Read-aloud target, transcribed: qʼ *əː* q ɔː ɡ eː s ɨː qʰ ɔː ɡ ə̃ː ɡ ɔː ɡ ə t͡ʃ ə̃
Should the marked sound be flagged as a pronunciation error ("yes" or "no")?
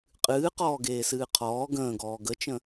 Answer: yes